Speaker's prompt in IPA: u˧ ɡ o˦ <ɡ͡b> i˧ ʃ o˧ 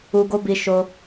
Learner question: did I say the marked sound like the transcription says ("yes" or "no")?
no